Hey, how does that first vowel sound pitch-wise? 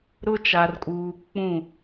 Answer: high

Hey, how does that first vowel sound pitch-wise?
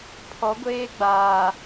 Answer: rising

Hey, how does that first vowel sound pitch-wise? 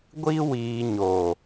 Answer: high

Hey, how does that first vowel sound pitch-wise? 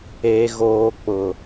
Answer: low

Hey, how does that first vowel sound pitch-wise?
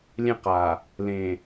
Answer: falling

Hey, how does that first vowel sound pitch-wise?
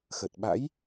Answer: low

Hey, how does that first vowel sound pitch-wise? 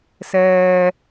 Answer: low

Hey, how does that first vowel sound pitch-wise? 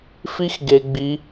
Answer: high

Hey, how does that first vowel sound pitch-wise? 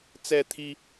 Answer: high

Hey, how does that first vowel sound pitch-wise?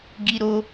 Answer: high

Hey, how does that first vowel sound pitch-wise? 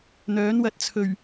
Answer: rising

